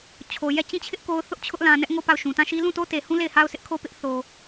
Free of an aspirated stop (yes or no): no